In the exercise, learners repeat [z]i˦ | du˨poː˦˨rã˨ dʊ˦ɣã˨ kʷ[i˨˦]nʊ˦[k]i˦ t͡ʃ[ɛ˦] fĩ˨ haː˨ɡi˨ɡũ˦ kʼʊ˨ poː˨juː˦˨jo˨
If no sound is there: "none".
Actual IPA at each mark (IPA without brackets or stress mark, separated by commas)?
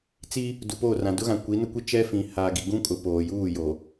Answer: t͡s, i˨˦, kʷ, ɛ˦